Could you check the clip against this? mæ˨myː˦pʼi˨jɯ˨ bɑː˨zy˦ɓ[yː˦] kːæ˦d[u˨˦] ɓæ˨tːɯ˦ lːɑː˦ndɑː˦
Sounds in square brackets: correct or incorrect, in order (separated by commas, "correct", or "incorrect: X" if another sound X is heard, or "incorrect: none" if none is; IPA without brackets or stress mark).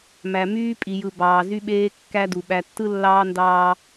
incorrect: eː˦, incorrect: u˨